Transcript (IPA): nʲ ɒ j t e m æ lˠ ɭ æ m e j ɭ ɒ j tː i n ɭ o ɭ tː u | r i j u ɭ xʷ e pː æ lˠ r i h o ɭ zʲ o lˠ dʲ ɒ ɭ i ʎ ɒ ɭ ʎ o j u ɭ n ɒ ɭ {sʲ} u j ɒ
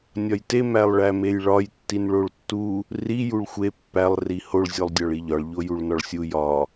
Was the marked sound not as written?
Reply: no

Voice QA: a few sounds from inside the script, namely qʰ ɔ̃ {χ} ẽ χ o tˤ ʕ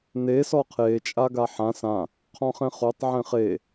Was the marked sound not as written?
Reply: no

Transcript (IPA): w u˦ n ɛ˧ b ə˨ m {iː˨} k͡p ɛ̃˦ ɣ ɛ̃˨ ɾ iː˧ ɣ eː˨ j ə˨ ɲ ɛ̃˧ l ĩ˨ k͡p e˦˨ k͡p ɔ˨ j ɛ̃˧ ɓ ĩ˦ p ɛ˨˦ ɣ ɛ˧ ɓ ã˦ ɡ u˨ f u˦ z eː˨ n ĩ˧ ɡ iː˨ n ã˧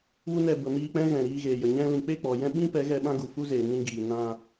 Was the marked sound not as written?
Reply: yes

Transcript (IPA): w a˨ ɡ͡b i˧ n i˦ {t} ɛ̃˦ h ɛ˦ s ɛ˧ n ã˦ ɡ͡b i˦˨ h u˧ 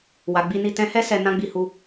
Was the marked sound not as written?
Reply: no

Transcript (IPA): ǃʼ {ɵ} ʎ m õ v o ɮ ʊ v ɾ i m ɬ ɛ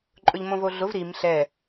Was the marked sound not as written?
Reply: no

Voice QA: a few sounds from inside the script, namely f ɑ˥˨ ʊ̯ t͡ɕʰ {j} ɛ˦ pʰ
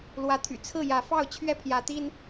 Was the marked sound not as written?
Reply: yes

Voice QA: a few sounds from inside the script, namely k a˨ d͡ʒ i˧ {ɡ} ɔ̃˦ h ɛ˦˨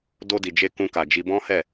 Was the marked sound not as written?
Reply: yes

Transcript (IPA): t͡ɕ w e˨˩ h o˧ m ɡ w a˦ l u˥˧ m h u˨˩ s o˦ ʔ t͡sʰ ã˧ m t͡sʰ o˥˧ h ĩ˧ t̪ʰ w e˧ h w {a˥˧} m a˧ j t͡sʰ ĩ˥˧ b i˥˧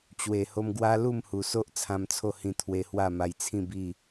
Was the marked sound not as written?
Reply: no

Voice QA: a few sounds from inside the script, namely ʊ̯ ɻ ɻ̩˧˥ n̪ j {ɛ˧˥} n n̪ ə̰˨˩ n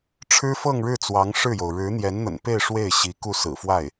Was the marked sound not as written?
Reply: no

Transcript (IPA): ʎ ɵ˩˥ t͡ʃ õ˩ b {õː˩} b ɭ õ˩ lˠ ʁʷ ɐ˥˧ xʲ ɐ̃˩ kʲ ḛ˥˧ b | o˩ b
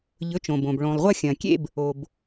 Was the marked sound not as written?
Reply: yes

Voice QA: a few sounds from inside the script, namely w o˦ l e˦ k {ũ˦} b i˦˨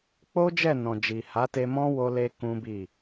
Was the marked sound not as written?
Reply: no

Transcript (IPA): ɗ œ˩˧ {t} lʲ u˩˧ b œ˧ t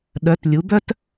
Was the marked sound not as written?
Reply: no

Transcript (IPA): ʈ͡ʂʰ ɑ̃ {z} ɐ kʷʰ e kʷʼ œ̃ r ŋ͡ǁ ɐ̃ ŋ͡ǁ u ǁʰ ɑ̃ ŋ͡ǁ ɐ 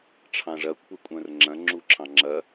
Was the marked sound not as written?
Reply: yes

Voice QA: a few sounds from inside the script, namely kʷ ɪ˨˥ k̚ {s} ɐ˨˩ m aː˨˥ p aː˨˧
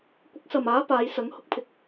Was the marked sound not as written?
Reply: no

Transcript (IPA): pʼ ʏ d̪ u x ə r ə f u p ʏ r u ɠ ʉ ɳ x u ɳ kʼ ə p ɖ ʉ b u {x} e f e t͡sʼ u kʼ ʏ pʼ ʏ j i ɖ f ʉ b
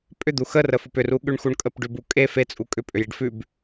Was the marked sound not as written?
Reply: yes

